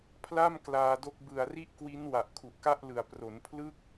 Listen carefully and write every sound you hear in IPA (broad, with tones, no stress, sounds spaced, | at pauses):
pʰ l a˥˩ m k l aː˧ d o˦˥ k̚ b ɯ˨˩ a̯ r i˥˩ ʔ k w i˦˥ n w a˨˩ ʔ kʰ u˨˩ ʔ k a˥˩ ʔ l ɯ˨˩ a̯ p r o˩˦ n pʰ l ɯ˥˩ k̚